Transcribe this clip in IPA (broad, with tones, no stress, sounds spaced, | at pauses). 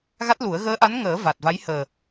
ɣ a˦˥ t̚ l u˨˩˦ ə̯ ɣ əː˧˥ ʔ a˧˥ n ŋ əː˨˩˦ v a˨˩ t̚ v a˧˥ j h əː˨˩